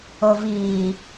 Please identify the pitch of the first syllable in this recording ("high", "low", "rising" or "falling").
low